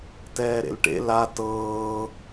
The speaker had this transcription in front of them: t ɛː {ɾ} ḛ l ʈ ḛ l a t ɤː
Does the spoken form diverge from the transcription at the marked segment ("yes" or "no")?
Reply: no